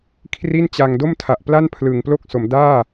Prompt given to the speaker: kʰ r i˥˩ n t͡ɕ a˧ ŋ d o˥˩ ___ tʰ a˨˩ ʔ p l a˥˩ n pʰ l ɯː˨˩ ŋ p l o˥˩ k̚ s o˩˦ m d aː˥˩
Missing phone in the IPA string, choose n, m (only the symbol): m